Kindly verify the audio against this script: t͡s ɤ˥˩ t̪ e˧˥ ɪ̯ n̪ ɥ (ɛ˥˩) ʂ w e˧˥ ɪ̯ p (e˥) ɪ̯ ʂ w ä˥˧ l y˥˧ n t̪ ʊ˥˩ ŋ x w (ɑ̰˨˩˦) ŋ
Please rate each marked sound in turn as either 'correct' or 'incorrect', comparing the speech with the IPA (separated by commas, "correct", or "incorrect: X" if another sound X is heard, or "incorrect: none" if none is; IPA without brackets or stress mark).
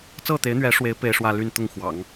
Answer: incorrect: ɛ˧˥, correct, correct